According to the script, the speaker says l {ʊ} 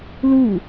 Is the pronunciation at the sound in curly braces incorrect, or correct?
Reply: incorrect